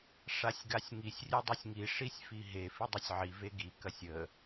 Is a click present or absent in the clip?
absent